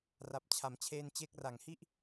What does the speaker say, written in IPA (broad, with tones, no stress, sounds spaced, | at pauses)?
r a˨˩ p̚ t͡ɕʰ a˩˦ m t͡ɕʰ eː˧ n t͡ɕ e˦˥ k̚ r a˨˩ ŋ h i˥˩ ʔ